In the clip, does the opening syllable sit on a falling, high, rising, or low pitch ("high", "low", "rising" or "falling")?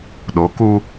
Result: rising